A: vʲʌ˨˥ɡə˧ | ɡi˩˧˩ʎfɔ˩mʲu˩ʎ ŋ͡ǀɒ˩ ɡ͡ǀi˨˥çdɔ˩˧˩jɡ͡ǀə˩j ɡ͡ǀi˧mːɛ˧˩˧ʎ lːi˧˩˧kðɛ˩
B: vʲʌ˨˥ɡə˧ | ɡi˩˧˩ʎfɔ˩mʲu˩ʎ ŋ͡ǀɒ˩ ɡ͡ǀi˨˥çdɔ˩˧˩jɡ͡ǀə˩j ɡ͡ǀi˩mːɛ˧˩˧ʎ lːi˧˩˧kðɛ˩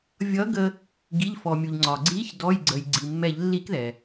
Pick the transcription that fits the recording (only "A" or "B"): B